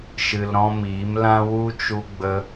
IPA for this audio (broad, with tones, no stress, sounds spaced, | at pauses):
ʃ ɨ˧ l ɾ ɔ̃˦ m iː˨˦ m l ã˦ w u˦ t͡ʃ u˧ ɡ͡b ə˧